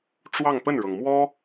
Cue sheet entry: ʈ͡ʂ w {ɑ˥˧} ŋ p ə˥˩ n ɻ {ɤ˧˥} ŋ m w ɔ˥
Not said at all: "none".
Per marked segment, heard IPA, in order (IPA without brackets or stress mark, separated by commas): ɑ˥˧, ɤ˩